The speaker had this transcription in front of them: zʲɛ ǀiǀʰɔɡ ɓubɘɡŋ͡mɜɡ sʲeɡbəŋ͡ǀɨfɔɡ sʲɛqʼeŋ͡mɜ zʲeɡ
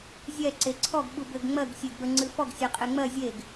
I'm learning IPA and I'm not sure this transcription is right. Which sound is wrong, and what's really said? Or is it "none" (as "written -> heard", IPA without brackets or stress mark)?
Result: i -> e